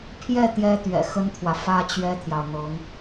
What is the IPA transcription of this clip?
pʰ j ɛ˥˩ t̪ j ɛ˥ t̪ ɥ ɛ̰˨˩ x ə˥ n t̪ʰ w ä˨ f ä˥ t͡ɕ ɥ ɛ˥ t̪ʰ j ɑ˨ ʊ̯ n̪ ɤ˧˥ ŋ

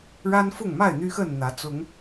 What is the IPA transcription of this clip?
ɻ a˦ n f ʊ˥˨ ŋ m a˥˨ ɪ̯ n̪ y˦ x ə˥˨ n n̪ ä˨˦ t͡s ʊ˨˦ ŋ

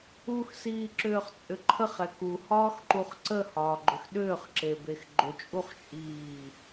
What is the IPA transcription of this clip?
u x s iː ǁ ʏː χ t͡sʼ ʏ ǃʰ ə χ ɛ k u h ɒː x ǃ u χ ǀ ə h ɒː ɡ͡ǃ ʏ x ɗ ʏː χ ǁ e b e x ɡ͡ǃ ʏ t͡ʃʼ u χ t͡ʃʼ iː

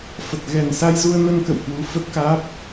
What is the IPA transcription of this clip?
f ə˨˩ t̚ ɣ ɛ˨˩ n s a˧ j z u˧ ə̯ n ə˧ n k ə̰˧˨ w h w u˨˦ f ə˦˥ t̚ k aː˦˥ p̚

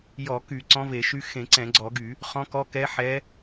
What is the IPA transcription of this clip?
j ɔ˧˩˧ k y˧˩˧ ǀ ɔ̃˧˥ v e˧˩˧ ʃ y˧˥ x ẽ˧˩˧ ǀ ɛ̃˧˩˧ ɡ͡ǀ ɔ˧˩˧ ɡ y˧˩˧ | χ ɔ̃˧˥ k ɔ˧˥ k ɛ˧˥ ħ ɛ˧˥

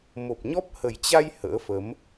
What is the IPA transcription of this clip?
m o˨˩ p̚ ɲ ɔ˦˥ p̚ h ə˨˩ j t͡ɕ a˧ j h ə̰ː˧˥ f ə˨˦ m

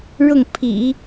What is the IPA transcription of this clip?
ɻ ʊ˥˩ ŋ pʰ ḭ˨˩˦

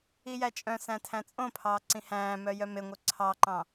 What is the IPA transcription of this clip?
i j æ t͡ʃʼ œ̃ s æ̃ tʰ æ̃ t͡sʼ õ pʰ ɑː ǀ ĩ h æ̃ː m œ j œ m e ŋʷ œ ǀʰ ɑ ǃ ɑ̃

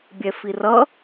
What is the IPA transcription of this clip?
bʲ ɛ f i r ʌ

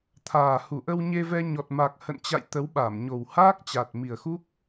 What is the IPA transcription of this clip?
t̪ʰ aː˨˩ h u˧˩ ʔ ə˧ w ɲ e˧ v ɛ˧ ɲ ɔ˨˩ t̚ m a˨˩ k̚ h ə̰˧˨ n t͡ɕ a̰˧˨ j t̪ ə˨˦ w ɓ a˧˩ m ɲ o˨˩ w h aː˦˥ k̚ t͡ɕ a˨˩ t̚ m i˨˩ ə̯ x u˦˥ k̚

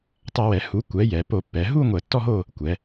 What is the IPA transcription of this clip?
tˤ ɐ˧˩˧ w ɛ˩˧ h u˩˥ kʷ ɛ˩˥ j ɛ˩˧ p o˧˩˧ pː ɛ˩˧ ɦ u˥˧ ŋʷ ɛ˧˩˧ tː ɔ˥˧ ɦ o˥˧ | kʷ ɛ˩˧

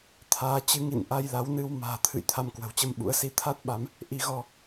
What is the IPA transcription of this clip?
t̪ʰ aː˨˦ t͡ɕ ɨ˨˦ ŋ ḭ˧˨ n ʔ a˧ j l a˨˦ w n ɨ˧ w m a̤ː˨˩ t̪ʰ ɨ̰˧˨ j t̪ʰ a˧ m k w ə̤˨˩ w t͡ɕ ə˧ m ɓ ṵ˧˥ ə̯ s i˨˦ t̪ʰ a˦˥ t̚ ɓ a˨˦ m | ʔ i˧ ɣ ɔ˧

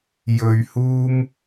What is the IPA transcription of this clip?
j ɵ˧ ɥ h uː˥ m

